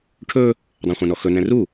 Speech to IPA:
ʈʰ ɵ | dˤ ã χʷ ã n ɔ x ɵ n ɛ̃ r u

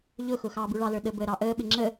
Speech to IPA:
ʎ ʊ x ʊ x ɑː b u ɭ ɑ l ə˞ ɗ ə b əː ɾ ɑ ʔ əː ɓ ɪ ŋ͡ǁ ə

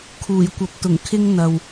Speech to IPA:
kʰ uː˨˩ j kʷ ɐ˨ p̚ t̪ ʊ˨˩ ŋ kʰ ɪ˧ ŋ n̪ ɐ˨ w

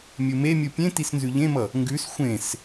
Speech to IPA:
mʲ u m e mʲ u pʲ ẽ t i s n z ʉ ʎ ẽ m ʌ | ŋ ɡ ʉ s xʷ ẽ s

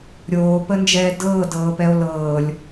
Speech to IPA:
ɾʲ oː p ə n d͡ʒ ɛː d ɤː d ɤː p ɛ o̯ l ɤː lʲ

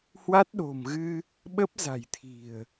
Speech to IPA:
h w a˦˥ t̚ ɗ o̤˨˩ m ɣ ɨ˧ | ɓ ə˦˥ p̚ z a̤˨˩ j t̪ʰ i̤˨˩ ə̯

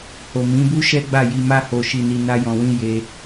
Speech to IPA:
h o˨ m ĩ˨˦ b u˦ ʃ ɛ˦ ɡ͡b a˦˨ j i˧ m a˦ h o˧ ʃ i˧ n i˧ n a˦ j ɔ̃˧ w ĩ˦ j e˦

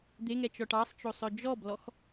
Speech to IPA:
d̪ e ŋ ɛ t͡ʃ ɔ ʈ ɑ sˤ t͡ʃ o sˤ œ d͡ʒ ɔ b l ɔ x

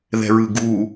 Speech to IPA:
ð ɛ̤ ɹ ɯ ɡ u

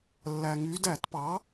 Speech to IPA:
lː æ˩ ŋ y˩˧ d æ˧˩˧ t p ɑ˩˥

